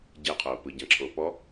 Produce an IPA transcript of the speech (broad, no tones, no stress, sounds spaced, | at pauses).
ɟ ɛ qʰ oː p ɯ ɟ ã ǁʰ oː p ɔ